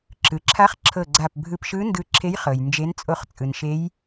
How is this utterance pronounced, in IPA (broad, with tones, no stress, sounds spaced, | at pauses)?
ǁ ɯ˩ ǁʰ a˧˥ χ ǁʰ ɤ˧˩ ɡ͡ǀ a˧˩ p bʱ ɯ˧˩ p ʃ ɯ˧˥ n d ɯ˧˩ ǁʰ e˧˥ j χ ɤ˩ j n d͡ʒ e˧˥ n t͡sʼ o˧˥ χ t͡sʼ ɯ˩ n ʃ e˧˥ j